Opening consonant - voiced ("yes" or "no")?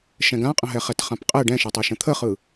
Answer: no